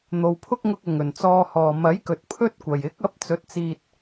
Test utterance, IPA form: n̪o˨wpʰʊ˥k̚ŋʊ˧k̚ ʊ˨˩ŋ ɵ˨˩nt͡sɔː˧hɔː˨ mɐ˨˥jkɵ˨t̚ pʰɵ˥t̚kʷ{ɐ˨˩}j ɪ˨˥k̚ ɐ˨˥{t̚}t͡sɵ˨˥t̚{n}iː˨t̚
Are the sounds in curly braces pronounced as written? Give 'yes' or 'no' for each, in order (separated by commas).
no, no, no